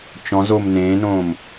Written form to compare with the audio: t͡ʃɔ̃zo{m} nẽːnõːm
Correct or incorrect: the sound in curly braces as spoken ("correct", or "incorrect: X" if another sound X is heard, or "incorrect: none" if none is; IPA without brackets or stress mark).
correct